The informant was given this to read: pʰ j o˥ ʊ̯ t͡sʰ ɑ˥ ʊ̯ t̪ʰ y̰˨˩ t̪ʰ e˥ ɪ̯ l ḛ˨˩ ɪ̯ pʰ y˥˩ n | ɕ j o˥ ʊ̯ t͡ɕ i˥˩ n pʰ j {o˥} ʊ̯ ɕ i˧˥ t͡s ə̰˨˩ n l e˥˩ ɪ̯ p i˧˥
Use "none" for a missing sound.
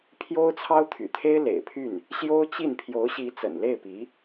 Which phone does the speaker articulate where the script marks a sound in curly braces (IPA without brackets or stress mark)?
o˧˥